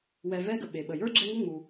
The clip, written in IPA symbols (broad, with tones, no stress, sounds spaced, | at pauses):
w ɛ˨ v ɛ˥ ɡ ə˩ ɓ e˩ ɓ ə˩ j ə˞˥ ɡ͡ǁ ɛ˦ ŋ ə˥ ŋ͡m u˩